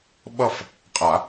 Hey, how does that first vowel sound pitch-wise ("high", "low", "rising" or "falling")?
falling